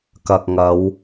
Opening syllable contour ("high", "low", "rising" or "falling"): low